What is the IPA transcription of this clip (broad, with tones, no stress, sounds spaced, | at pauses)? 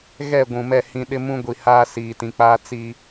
ɣ ɛ˦˨ ɡʷ ũ˨ m ɛ˦˨ h ĩ˨ ɗ ɪ˦ m ũ˦ ɡʷ i˨ h aː˦ s iː˨ t ĩ˨ k͡p aː˦ t͡s i˨